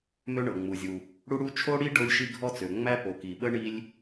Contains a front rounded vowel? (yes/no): yes